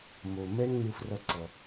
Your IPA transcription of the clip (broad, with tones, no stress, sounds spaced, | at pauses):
m o˩ m ɛ˧ ŋ n ɯ˧ f r ʌ˧ ǀ ʌ˩